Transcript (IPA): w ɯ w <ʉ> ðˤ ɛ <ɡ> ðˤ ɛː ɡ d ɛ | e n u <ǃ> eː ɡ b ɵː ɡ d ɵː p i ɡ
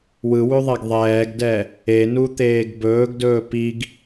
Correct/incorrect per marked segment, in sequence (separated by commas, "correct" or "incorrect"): correct, correct, incorrect